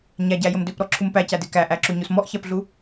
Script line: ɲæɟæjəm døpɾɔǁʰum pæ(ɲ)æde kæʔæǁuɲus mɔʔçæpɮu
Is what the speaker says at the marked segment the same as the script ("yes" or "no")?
no